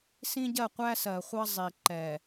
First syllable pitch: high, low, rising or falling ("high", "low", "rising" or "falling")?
high